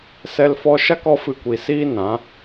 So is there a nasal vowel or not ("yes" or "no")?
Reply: yes